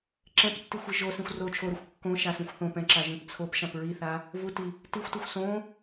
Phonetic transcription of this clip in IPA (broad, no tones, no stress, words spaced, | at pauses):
ǁɛ̃ptːi xʷiʒosĩxʷ ro t͡ʃʰoɾixʷ kːõ ʃasõxʷθõpɛ̃ ǁaʒĩpt͡sʰopʃãp ɹiθa | vuti | tixʷtuxʷ sõ